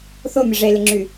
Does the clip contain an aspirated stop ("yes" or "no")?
no